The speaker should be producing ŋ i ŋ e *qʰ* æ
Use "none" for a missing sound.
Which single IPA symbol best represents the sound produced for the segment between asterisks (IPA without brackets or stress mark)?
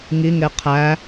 qʰ